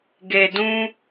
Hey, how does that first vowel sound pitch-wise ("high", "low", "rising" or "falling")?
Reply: low